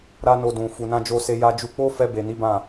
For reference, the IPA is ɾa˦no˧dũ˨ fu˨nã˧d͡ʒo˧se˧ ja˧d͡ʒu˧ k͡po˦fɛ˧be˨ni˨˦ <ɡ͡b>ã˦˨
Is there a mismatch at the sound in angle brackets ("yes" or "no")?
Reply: yes